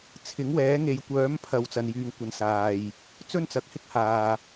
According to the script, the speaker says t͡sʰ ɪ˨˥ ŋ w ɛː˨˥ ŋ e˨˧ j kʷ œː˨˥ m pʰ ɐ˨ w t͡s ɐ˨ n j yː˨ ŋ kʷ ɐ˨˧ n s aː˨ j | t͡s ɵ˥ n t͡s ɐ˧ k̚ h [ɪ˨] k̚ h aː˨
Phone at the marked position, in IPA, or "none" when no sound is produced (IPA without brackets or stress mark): ɪ˥